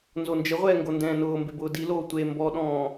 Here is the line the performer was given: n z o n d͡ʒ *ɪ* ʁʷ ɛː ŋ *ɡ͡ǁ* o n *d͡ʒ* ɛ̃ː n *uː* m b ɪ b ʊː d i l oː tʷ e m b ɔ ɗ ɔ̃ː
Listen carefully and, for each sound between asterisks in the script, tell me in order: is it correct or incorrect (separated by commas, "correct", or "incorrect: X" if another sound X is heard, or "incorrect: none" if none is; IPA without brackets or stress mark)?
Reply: correct, incorrect: ɡ, incorrect: d, incorrect: ʊː